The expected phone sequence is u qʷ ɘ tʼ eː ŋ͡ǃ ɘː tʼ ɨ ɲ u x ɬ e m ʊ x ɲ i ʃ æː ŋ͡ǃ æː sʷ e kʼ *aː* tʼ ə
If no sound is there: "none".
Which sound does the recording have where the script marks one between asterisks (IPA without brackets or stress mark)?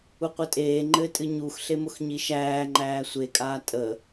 aː